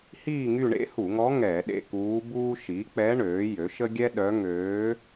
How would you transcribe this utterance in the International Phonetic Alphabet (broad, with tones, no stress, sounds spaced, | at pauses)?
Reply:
h iː˦˨ ŋ y˦˨ ɳ ḛ˧˥ h u˧˩˧ ŋ ɔ˧˥ ŋ ɛ˧˩˧ ɗ ḛ˦˨ k uː˧˥ b uː˥ ʃ i˩˥ k͡p ɛ˧˥ ɳ øː˩˥ j ø˩˥ ʃ ə˥ ɡʲ ɛ˥ ɗ œ˧˥ ŋ øː˧˥